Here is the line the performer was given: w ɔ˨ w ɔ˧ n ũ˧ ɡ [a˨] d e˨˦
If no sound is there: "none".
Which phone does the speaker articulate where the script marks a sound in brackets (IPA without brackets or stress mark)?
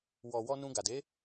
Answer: a˨